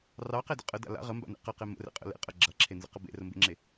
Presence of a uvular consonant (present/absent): present